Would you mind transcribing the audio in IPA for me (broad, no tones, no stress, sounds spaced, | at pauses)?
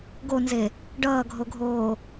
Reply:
ɡ o n z e | ɖ ʌː ɡʱ o ɡʱ oː